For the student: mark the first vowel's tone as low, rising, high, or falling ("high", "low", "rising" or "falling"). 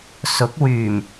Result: rising